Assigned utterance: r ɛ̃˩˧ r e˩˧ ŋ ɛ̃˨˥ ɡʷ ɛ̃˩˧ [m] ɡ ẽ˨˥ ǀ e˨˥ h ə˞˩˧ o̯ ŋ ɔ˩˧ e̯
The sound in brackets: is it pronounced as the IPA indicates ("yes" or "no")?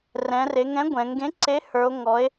no